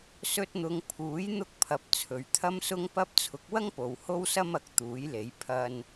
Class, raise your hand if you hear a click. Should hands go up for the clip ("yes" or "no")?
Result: no